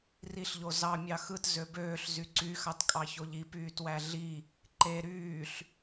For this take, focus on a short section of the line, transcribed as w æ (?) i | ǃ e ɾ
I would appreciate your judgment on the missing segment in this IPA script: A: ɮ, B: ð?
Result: A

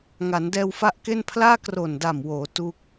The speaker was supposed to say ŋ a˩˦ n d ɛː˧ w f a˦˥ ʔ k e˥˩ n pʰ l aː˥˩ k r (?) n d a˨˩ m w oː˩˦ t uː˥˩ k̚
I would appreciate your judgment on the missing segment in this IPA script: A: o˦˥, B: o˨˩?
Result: B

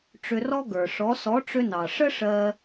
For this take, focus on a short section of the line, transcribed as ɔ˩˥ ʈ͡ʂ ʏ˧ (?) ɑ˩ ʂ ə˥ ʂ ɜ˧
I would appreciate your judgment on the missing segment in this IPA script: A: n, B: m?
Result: A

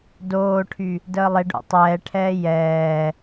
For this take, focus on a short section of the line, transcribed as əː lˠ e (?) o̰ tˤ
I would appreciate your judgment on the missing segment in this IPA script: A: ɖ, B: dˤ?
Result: A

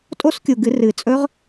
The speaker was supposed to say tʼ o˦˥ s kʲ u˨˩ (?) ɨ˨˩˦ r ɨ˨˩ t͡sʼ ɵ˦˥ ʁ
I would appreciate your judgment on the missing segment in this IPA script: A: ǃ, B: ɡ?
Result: B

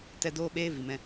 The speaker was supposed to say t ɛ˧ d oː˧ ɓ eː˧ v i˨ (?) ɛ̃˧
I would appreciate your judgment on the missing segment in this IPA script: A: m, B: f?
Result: A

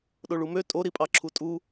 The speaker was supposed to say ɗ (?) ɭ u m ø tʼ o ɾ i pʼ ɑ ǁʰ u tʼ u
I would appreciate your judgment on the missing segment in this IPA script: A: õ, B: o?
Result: B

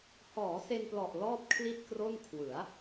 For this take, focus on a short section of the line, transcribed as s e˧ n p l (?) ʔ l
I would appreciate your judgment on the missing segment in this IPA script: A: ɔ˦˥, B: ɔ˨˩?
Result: B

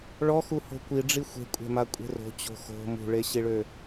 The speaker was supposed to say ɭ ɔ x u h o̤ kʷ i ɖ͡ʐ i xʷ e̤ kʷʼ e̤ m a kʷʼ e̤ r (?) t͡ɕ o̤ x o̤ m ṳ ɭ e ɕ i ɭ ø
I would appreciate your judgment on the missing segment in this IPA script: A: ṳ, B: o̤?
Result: B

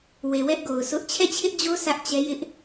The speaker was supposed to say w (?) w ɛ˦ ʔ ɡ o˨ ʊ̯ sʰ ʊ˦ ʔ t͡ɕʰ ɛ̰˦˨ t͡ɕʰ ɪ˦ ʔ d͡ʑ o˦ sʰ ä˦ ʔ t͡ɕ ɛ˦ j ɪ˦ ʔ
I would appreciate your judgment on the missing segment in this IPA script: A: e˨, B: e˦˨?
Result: A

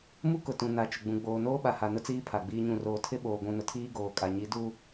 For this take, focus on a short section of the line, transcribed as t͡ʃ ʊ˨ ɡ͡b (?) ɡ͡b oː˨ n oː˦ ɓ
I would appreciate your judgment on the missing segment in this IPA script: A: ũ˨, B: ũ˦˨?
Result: A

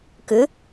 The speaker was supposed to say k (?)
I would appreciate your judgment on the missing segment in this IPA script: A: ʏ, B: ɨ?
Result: A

